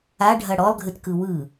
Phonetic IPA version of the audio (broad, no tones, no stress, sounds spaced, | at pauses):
a ɖʱ ɐ ɽ ɔ lˠ ɡʱ ɨ t k ɯ w ɯ